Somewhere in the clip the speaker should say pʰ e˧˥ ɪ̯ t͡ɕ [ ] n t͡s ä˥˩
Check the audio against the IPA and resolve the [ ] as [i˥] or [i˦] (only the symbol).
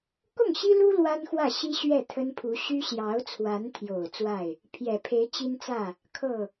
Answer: i˥